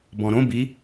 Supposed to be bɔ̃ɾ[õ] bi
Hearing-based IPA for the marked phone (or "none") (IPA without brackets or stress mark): õ